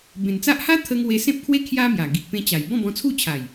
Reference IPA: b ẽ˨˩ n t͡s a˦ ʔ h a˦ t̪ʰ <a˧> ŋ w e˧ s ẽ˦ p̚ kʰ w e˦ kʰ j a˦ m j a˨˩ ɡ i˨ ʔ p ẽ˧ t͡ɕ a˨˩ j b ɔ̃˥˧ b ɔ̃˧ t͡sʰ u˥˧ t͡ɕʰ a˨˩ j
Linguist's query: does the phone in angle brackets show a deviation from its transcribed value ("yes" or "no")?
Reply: yes